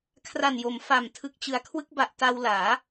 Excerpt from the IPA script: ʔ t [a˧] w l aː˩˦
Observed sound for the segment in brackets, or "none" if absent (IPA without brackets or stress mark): a˧